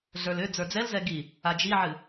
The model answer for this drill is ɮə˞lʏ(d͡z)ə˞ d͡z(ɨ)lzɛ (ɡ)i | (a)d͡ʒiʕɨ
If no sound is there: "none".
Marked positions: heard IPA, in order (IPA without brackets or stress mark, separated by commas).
d͡z, ɛ, ɡ, a